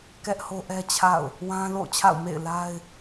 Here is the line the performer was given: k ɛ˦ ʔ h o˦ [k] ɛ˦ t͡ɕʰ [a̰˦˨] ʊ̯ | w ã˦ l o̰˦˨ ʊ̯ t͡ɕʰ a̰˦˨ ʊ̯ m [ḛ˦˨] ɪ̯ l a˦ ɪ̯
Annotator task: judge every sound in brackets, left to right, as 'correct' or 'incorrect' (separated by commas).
incorrect, correct, correct